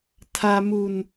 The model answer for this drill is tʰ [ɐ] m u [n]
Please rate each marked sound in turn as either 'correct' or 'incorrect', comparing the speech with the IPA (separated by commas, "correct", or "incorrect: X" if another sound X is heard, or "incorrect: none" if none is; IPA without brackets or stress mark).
incorrect: a, correct